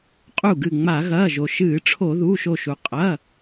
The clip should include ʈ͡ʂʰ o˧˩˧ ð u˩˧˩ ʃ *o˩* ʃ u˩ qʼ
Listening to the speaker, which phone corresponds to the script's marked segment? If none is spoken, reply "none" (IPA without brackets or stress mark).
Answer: o˧˩